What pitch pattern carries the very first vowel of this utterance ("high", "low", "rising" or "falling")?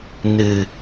low